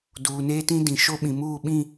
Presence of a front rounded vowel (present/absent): absent